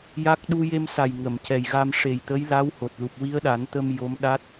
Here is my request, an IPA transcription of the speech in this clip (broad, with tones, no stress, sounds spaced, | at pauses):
j a˦˥ k̚ ɗ u˧ j e˧ m s a˨˩ j ŋ ə˨˩˨ m c ɛ˨˩ j ɣ a˧ m ʂ e˨˩ j t̪ ə˧˥ j l a˧˥ w h o˨˩ t̚ l u˨˩ p̚ w i˧˥ ə̯ ɗ a˨˩˦ n t̪ ə˧ m j o˧˥ m ɗ a˦˥ t̚